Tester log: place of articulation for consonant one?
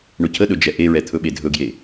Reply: retroflex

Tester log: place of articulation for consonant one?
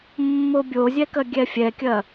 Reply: labial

